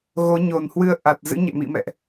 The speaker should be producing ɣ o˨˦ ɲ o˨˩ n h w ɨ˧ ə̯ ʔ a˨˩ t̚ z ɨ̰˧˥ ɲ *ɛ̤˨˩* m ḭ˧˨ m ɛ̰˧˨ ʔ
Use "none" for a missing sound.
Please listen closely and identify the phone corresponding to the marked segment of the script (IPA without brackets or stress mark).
ɛ̰˧˨